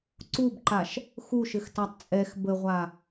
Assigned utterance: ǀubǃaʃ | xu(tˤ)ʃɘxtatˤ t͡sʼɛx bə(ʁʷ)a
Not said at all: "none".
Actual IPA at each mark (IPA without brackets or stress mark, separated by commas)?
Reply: none, ʁʷ